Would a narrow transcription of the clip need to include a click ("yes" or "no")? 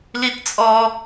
no